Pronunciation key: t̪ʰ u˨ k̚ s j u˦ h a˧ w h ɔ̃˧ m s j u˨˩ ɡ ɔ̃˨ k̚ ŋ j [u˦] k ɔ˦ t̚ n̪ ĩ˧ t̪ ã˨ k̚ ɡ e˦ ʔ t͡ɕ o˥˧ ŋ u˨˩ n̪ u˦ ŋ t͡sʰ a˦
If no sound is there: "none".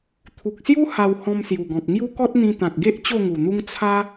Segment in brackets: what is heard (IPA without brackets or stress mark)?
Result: u˦